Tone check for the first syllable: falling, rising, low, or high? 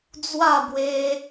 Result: falling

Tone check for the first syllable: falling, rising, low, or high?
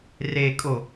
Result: low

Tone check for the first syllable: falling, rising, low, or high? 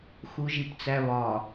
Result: low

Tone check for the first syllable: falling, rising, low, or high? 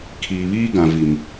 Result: low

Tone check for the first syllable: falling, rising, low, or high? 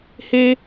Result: high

